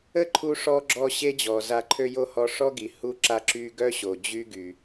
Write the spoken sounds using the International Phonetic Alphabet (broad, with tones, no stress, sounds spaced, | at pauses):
ə˦ ǃʰ u˧ ʂ ɔ˧ ɡ͡ǁ ɔ˧ ɕ e˦ d͡ʑ ɔ˨ z a˧ ǃʰ ø˧ j o˦ h ɔ˧ ʂ ɔ˦ ɡ i˨ h u˧ ǁ a˧ ǁ y˧ ɡ œ˦ ɕ o˨ d͡ʑ y˦ ɡ y˨